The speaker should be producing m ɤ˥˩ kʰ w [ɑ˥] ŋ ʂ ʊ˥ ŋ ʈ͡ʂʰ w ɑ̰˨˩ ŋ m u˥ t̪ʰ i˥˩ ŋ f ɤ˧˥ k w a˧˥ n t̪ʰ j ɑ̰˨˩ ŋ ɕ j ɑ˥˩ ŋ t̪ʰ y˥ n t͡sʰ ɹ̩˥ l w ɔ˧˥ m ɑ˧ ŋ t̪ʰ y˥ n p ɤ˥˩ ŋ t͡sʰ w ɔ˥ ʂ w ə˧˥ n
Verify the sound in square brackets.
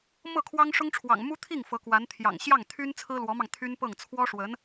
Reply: correct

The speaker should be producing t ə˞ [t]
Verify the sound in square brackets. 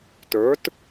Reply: correct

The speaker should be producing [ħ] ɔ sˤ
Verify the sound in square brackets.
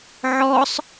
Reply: incorrect: ʕ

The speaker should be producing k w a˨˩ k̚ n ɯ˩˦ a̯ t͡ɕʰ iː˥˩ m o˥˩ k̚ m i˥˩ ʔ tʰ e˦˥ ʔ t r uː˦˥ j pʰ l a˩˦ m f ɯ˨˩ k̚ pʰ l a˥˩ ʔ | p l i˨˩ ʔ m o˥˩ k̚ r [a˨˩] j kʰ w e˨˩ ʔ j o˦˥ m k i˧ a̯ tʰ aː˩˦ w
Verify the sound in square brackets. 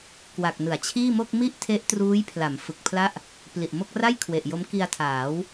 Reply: incorrect: a˥˩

